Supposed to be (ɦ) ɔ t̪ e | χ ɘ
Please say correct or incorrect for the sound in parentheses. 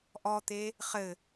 incorrect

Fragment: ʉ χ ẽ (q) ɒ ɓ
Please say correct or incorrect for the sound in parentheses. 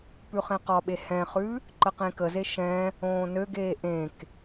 correct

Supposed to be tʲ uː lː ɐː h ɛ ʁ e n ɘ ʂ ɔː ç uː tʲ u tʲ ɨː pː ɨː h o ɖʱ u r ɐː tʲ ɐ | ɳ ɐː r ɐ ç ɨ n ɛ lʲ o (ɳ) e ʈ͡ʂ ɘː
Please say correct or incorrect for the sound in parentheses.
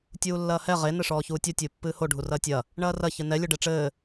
incorrect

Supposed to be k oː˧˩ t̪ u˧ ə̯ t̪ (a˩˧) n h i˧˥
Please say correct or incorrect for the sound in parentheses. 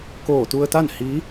incorrect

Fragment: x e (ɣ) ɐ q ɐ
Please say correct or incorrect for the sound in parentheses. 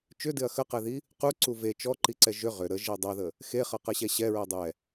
incorrect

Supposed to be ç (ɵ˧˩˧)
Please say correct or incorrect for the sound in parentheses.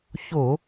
incorrect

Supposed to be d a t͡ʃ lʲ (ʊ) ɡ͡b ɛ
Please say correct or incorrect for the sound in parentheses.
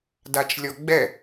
incorrect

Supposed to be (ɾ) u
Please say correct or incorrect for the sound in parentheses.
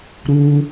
correct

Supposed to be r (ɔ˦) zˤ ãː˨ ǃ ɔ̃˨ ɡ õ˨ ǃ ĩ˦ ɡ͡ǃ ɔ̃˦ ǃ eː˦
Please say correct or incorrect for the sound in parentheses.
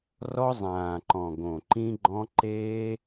correct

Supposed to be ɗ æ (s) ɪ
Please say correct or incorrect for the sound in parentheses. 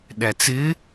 incorrect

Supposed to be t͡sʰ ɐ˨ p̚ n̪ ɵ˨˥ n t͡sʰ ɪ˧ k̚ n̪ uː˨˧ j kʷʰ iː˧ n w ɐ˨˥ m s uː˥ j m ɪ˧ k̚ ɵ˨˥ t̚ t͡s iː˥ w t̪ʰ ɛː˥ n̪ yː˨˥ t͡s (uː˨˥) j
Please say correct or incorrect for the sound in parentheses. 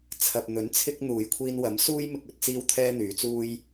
incorrect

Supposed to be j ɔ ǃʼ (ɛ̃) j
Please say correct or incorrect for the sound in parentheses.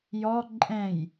correct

